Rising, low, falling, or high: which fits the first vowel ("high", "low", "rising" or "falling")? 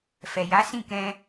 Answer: low